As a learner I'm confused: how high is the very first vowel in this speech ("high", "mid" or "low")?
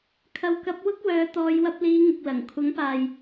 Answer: low